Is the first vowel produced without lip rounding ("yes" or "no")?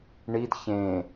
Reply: yes